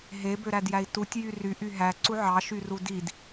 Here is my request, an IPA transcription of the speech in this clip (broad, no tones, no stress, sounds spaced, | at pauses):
ɦ e b ø ɾ æ d j æ i̯ t u tʲ j y r y ʔ y ɦ æ ǀ u ʕ ɑ ʃ y r u d i d